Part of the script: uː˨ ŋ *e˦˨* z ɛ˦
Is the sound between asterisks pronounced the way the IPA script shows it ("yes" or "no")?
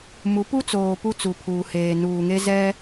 no